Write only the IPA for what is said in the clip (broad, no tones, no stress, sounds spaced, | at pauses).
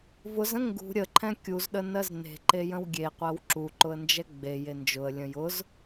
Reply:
v ʊ z ə̃ ŋ ɡ ṳ ɾʲ ə ǃʰ ɛ̃ kʲ u z ɗ ə n ɜ z n e̤ ǃ e j ə̃ w ɡʲ e qʷ ɜ w ǁ u ǃ ʊ ə̯ n d͡ʒ ɛ ɡ͡b e j e n d͡ʒ ʊ ə̯ lʲ ə̃ j ʊ z